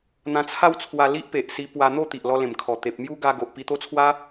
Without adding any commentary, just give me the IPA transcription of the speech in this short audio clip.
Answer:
n̪ ã˧ t͡sʰ a˦ w t͡sʰ w a˧ l i˦ ʔ p e˨ ʔ s i˧ p w a˧ n̪ o˥˧ t̪ i˨ ʔ l ɔ˧ l ẽ˨˩ m kʰ ɔ˨˩ t̪ e˨ p̚ m j u˦ ɡ a˧ ɡ o˨ ʔ p i˧ t̪ o˦ t͡sʰ w a˦

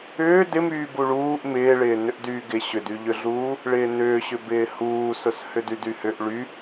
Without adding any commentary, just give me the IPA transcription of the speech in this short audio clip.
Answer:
ʏː d ɪ m yː b u ɭ uː ʔ m ɪː ɭ ɪː n ʏ ʔ d yː ɡ ɪ ɕ ʏ d y ʎ ʏ ɮ uː | ɭ ɪː n ʏː ɕ ʏ b ɪː h uː s ʊ s h ʏ d y d y h ʏ ʔ ɭ y

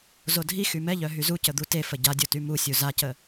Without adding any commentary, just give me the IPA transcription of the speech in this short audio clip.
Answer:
z o dʱ i x y m ɛ ʎ œ ɦ y z u c ə d̪ u t e f ə ɟ a dʲ o t y m u sʲ u z a c ə

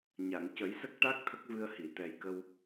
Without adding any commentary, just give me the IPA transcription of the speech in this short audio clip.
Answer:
ɲ a˨˩˨ ŋ c ə˨˩˦ j s ə˦˥ k̚ ʈ a˦˥ k̚ t̪ʰ ə˦˥ k̚ v ɨ˧ ə̯ h i˨˩˨ t̪ ɛ˨˩ j k ə˧ w

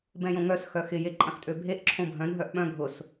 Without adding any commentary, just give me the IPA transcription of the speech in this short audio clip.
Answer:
b ɛ̃ j õ ŋ œ s x œ x ɪ j e ǃʼ ɐ̃ x tʼ ø bʱ e ʔ ǁʰ õ bʱ œ̃ n ɦ œ ʔ ɓ œ̃ ɡʱ ʊ s

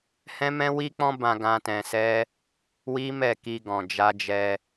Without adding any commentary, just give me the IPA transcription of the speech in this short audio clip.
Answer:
h ɛ̃˦ m ɛ̃˦ w i˦ k͡p ɔ̃˦ b ã˧ ɡ ã˧ t ɛ̃˧ s ɛ˦ | w i˦ m ɛ˦˨ k i˧ ɡ ɔ̃˨ d͡ʒ a˧ d͡ʒ ɛ˧

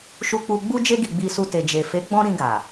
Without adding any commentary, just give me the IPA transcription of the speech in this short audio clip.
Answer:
ʃ u˧ k͡p u˧ ɡ͡b u˧ d͡ʒ e˧ ɡ i˨ ɡ͡b i˧ s u˧ t e˨ d͡ʒ e˨ f e˨˦ ɡ͡b ɔ̃˧ ɾ ĩ˧ ɡ a˨

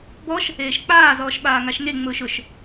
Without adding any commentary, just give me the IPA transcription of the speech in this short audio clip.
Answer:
b ɔ ʃ | eː ʃ k͡p aː z ɔː ʃ ɓ aː ŋ a ʃ ŋ e ŋ͡m ʊː ʃ ʊ ʃ

